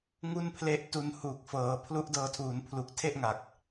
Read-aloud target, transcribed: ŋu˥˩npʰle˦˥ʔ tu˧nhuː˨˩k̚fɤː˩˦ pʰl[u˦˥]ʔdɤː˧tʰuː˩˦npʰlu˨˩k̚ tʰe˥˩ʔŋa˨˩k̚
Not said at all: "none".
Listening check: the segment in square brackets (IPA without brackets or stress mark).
u˦˥